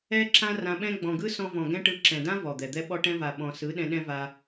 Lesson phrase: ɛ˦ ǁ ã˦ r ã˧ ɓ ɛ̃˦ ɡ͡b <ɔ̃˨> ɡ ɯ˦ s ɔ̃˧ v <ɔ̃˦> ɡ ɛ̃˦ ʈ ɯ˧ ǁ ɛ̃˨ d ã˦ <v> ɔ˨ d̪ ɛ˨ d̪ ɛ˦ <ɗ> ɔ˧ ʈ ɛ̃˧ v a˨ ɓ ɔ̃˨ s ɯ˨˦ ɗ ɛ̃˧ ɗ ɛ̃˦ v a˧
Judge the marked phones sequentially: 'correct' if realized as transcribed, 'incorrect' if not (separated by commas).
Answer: correct, incorrect, correct, incorrect